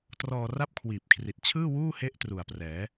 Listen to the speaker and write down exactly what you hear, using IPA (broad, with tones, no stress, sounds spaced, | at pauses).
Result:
t r ɔː˧ r a˥˩ p̚ kʰ w iː˨˩ p̚ kʰ r i˨˩ t̚ t͡ɕʰ ɯː˥˩ w uː˥˩ h e˦˥ ʔ t r u˨˩ a̯ p r ɛː˩˦